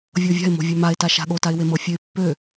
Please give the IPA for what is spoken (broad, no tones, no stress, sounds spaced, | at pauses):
vʲ ɤ vʲ a̤ ɪ̯ m o̤ vʲ ø m a ɪ̯ t a ʃ a̤ ɠ o t a ɪ̯ w e m ɤ fʲ ø ɪ̯ pː ø